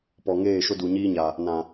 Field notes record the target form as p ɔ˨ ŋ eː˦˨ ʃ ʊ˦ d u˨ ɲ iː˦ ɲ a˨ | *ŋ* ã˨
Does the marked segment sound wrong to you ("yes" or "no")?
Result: yes